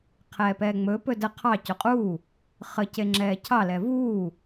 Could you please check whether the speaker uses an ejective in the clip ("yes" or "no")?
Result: yes